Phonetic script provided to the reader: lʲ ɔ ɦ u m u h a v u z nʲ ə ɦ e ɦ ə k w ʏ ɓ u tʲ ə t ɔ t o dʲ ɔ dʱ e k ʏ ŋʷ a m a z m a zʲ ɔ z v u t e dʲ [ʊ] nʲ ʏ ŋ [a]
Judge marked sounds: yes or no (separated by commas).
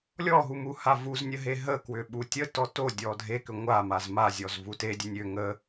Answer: no, no